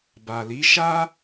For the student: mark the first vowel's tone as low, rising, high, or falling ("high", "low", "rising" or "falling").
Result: low